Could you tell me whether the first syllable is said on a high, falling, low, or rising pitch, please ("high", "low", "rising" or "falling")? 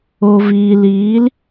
low